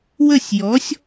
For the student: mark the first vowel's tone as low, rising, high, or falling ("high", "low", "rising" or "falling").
falling